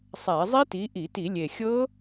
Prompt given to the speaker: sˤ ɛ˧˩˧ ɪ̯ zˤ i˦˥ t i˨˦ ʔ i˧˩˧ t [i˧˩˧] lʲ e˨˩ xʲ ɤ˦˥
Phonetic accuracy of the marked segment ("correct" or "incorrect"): correct